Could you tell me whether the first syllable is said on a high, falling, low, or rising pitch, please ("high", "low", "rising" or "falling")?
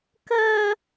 high